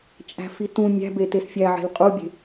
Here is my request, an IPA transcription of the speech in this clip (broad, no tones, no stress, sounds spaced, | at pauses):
t͡ʃʼ æ̤ f i t ũ mʲ æ̤ b e t e s fʲ æ ʕ e̤ l qʼ u bʲ e̤